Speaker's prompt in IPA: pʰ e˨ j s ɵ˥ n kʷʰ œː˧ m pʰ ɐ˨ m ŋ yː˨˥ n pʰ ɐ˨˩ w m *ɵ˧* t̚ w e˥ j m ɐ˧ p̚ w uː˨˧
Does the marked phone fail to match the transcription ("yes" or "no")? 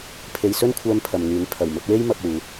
no